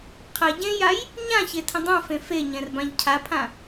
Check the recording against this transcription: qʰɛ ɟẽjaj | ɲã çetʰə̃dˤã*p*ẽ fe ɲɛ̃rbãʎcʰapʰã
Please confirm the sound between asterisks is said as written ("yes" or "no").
no